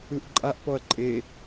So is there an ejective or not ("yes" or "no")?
yes